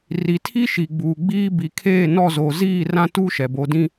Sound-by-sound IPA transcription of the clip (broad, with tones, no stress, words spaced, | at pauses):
ri˨tʰi˦ʃi˨ɡ͡buː˨ ɡ͡biː˦ bi˨kʰeː˦˨nɔ˦˨zoː˨ ziː˦˨ rã˦ tuː˦ʃɛ˨ bo˨dĩ˦